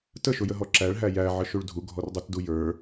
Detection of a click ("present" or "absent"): present